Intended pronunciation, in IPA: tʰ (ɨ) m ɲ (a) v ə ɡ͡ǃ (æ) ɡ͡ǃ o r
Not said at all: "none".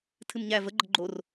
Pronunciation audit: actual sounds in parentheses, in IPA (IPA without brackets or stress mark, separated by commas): ɨ, æ, ə